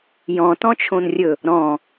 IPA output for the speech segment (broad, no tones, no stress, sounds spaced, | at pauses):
j ɔ̃ t ɔ̃ t͡ʃʰ õ n rʲ ɵ | ɾ ɔ̃